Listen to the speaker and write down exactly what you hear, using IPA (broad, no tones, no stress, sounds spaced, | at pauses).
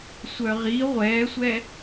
sʷ œ ʁ i ʁʷ ɛː sʷ ɛ